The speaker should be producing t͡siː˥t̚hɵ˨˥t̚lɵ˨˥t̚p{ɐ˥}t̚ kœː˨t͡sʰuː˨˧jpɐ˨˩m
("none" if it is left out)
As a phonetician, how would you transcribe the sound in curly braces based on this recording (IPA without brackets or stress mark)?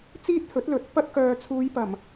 ɐ˥